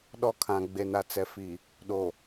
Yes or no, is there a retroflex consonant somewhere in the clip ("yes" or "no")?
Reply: no